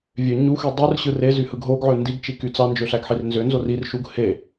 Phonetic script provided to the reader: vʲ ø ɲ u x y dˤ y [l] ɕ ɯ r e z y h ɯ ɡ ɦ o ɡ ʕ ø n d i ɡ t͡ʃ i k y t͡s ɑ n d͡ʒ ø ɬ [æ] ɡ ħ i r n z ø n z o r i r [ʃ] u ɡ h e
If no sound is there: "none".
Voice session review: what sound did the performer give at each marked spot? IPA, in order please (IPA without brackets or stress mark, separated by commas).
r, æ, ʃ